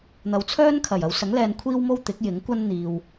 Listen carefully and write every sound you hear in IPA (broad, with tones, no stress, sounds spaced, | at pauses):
n̪ ɐ˨ w t͡sʰ œː˥ n kʰ ɐ˨˩ j ɐ˨˧ w s ɐ˨˥ ŋ l ɛː˧ n kʷʰ iː˥ w m o˥ w t̪ ɪ˨˥ k̚ j ɪ˨˥ ŋ kʷ ɐ˥ n n̪ iː˨ w